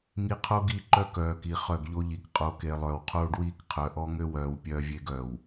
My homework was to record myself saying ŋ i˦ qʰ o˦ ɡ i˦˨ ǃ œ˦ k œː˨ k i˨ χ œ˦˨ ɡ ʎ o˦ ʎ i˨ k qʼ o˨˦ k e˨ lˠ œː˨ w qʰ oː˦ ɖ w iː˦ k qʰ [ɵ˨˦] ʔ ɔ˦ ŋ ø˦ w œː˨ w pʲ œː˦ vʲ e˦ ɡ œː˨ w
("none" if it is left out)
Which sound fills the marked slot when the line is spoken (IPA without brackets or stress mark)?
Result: œ˨˦